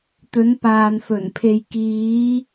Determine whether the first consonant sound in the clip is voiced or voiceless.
voiceless